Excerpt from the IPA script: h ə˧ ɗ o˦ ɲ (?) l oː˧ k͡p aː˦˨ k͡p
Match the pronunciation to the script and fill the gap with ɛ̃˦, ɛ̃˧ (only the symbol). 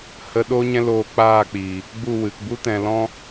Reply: ɛ̃˦